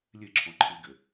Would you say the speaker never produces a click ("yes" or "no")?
no